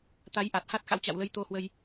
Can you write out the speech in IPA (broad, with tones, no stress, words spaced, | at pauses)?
t̪a˨˦jʔa˨˩t̚ha˦˥t̚ xa̰˧˥wt͡ɕa̰˧˨wlə˨˦j t̪o˧hwə˧j